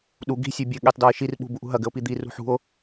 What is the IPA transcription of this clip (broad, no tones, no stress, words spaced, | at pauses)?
ɗu ɡi̤ sʲebʲɘ ɠetˤdɔe̯ʃir ɓṳbuʔṳɦɐ ɡɘo̯pid̪i rṳħṳo̯